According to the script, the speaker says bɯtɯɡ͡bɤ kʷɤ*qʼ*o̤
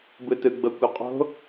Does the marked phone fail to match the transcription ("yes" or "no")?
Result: no